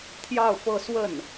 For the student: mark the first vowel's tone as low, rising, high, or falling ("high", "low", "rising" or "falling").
falling